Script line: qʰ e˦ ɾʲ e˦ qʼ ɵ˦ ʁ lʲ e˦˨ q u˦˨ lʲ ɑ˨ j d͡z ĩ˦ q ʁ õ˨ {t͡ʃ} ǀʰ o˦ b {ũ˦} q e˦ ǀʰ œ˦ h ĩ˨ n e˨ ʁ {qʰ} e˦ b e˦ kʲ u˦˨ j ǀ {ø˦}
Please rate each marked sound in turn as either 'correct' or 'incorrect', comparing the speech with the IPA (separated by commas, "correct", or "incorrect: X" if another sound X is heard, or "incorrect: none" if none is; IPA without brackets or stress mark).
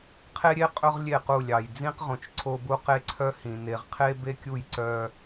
correct, incorrect: u˦, correct, incorrect: œ˦